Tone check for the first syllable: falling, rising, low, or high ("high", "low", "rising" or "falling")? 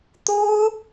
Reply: high